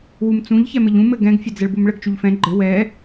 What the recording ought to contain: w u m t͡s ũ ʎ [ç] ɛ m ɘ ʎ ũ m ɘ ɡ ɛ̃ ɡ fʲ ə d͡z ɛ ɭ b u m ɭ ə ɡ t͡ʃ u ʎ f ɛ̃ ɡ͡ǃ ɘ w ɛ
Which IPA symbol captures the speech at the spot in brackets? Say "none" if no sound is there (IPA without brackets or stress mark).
ç